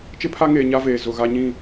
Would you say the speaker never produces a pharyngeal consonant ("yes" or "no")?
yes